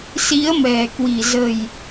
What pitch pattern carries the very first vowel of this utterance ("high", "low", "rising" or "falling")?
rising